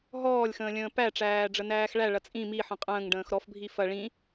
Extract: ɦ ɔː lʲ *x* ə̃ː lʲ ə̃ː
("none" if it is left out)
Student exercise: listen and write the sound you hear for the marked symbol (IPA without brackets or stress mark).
x